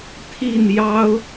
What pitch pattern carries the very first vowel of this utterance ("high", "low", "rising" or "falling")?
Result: falling